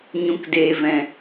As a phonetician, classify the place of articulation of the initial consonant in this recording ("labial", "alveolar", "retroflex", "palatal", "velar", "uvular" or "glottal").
palatal